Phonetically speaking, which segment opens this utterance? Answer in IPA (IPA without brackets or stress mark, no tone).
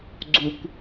ɡ͡ǀ